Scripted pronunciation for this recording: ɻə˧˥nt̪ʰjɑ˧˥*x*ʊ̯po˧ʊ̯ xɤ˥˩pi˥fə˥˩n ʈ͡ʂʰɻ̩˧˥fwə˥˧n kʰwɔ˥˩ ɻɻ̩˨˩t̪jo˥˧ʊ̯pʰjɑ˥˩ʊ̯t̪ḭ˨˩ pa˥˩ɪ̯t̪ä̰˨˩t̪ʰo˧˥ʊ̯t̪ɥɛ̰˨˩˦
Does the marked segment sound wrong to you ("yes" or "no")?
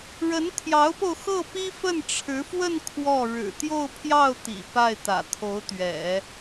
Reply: yes